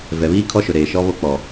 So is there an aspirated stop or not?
yes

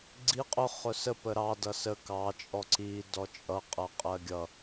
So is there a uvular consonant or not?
yes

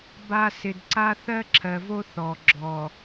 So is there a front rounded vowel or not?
no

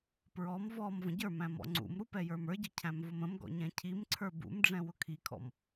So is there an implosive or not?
no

